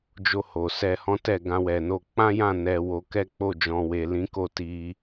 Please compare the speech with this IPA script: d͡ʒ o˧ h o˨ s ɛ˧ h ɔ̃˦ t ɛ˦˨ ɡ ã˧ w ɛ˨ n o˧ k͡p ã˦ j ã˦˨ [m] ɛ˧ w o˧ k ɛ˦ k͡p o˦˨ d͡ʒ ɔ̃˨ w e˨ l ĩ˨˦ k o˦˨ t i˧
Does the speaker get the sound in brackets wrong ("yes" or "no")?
yes